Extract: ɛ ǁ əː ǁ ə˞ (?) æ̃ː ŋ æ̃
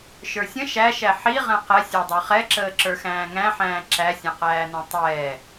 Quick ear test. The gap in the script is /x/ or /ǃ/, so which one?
x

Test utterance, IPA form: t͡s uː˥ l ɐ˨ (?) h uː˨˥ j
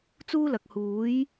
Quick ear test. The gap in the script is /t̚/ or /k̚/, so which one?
k̚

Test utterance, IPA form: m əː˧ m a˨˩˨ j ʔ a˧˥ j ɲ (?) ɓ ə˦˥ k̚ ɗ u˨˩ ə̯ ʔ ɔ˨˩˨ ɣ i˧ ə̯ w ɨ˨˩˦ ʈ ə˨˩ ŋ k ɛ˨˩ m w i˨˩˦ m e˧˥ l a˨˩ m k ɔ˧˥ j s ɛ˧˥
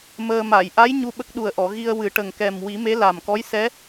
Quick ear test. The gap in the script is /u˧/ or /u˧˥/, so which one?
u˧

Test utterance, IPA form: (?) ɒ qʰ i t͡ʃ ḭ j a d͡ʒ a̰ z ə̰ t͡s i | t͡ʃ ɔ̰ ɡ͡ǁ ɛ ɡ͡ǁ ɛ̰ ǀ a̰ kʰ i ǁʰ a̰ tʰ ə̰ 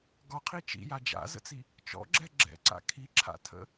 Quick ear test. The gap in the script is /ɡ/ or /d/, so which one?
ɡ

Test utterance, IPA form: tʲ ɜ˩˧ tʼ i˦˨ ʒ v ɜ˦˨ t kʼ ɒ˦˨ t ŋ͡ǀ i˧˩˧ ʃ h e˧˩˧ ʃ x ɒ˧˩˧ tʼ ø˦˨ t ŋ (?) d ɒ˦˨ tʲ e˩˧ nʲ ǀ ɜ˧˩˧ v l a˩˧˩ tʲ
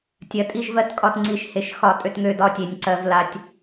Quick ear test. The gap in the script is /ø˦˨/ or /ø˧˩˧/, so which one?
ø˦˨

